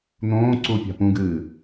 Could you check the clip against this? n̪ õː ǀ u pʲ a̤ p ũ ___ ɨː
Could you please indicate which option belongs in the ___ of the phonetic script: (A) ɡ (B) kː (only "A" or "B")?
A